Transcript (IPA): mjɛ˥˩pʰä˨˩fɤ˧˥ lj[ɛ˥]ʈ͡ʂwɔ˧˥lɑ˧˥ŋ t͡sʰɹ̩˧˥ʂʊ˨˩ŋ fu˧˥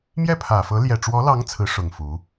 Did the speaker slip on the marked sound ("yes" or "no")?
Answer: yes